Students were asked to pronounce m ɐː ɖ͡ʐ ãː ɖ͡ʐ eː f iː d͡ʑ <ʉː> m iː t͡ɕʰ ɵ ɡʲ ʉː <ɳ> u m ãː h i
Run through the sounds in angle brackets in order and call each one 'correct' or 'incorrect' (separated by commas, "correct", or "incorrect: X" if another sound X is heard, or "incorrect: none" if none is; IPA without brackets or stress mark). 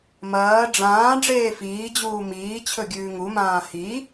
incorrect: uː, incorrect: ŋ